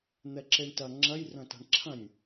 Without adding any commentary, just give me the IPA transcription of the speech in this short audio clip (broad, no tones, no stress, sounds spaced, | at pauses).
n̪ ɛ ǁ e ɳ t ɐ ŋ͡ǁ ɐ j r ɐ̃ t a̤ ɳ ǁʰ ɐ̃ nʲ